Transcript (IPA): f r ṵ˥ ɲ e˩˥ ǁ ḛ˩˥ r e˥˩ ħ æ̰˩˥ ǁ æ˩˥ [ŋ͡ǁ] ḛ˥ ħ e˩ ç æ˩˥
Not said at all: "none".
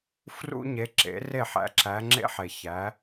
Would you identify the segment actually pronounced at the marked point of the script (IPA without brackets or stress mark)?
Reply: ŋ͡ǁ